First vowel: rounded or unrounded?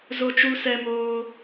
rounded